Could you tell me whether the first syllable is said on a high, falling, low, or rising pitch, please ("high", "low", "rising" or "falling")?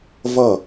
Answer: falling